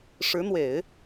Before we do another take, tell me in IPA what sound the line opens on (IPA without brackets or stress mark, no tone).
ʂ